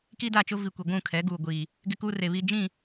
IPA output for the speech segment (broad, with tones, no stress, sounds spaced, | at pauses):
k i˦ d a˦˨ t͡ʃ ʊ˦ v i˨ kʷ i˨ ɡʷ ũ˦˨ kʰ ɛ˨˦ ɡ uː˨ ɡʷ iː˨ | ɡ ɪ˦ k uː˦ r e˨ β i˦ d͡ʒ ĩ˦˨